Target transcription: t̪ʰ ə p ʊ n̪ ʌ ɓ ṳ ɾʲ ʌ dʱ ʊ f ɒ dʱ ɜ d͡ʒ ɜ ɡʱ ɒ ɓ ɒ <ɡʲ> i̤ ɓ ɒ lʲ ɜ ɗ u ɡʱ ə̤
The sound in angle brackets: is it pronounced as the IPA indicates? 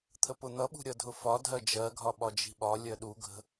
no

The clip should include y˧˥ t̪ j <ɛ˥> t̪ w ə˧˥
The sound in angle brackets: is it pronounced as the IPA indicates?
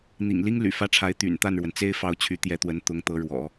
no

